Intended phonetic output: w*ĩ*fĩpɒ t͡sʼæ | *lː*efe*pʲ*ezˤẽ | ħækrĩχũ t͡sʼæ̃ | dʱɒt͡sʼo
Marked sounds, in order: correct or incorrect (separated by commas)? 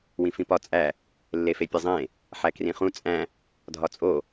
correct, correct, correct